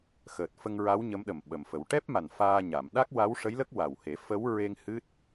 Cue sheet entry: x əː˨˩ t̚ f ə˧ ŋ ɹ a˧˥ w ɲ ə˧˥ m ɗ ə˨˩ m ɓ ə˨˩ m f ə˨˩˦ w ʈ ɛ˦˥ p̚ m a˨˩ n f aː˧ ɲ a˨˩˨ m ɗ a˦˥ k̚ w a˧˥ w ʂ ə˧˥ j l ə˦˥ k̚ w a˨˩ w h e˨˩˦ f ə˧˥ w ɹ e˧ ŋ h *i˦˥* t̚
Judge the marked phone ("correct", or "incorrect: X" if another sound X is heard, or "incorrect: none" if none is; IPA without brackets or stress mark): incorrect: ɨ˦˥